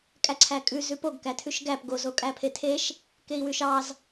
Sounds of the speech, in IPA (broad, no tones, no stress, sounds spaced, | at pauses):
kʼ æ ǀʰ æ kʼ ʉ z ʉ p o ɡ k æ tʰ ʉ ʃ ɡ æ p ɡ o z o kʼ æ pʰ e tʰ e ʃ | k e i̯ w ʉ ʃ ɑ z